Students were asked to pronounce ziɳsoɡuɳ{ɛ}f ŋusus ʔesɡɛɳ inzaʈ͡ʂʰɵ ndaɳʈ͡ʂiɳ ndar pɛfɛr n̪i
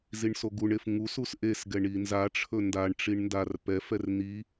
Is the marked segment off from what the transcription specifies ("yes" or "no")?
yes